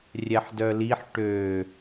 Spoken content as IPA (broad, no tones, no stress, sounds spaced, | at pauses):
rʲ ɛ ħ d œ l i ħ ʈ ø